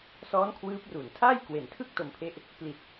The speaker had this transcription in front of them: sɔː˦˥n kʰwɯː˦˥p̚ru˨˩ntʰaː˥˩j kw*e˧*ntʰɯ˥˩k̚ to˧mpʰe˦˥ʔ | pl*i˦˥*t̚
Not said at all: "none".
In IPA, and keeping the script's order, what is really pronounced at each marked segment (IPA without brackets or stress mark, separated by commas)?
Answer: e˩˦, i˨˩